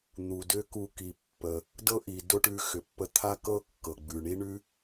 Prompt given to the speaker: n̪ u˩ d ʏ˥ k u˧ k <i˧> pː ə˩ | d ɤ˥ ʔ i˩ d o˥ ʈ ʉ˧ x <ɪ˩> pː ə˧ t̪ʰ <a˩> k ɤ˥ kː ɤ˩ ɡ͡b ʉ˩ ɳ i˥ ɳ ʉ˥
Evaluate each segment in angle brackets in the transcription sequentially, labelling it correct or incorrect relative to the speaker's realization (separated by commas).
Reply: incorrect, incorrect, incorrect